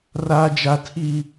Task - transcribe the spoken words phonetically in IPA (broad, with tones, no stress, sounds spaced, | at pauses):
r aː˦ d͡ʒ a˦ tʰ i˦